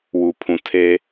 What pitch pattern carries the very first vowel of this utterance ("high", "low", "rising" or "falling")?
low